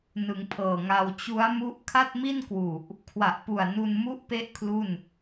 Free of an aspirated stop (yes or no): no